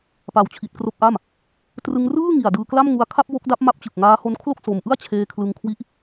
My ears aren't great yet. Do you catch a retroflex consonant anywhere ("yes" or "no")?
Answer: no